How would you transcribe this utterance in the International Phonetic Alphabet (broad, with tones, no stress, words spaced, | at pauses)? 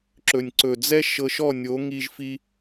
ǁɵ˩nʲǀɵ˩d͡zɛ˥ ʃɤ˧ʃɔ˥˩nʲo˩˥ ŋi˧ʒfi˧